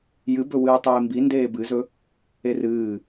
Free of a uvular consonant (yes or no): yes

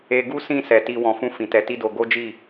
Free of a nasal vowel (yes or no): no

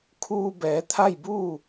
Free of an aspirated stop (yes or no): no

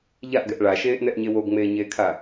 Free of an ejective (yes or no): yes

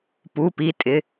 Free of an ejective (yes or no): no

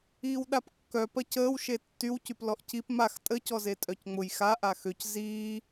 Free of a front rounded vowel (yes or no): no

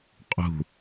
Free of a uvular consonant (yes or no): no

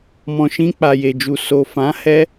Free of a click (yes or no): yes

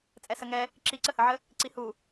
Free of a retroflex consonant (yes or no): yes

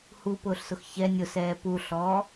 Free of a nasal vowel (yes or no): yes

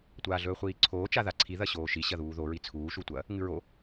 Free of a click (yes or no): no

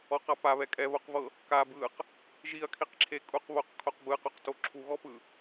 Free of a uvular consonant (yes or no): no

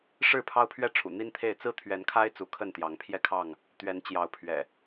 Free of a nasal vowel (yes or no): yes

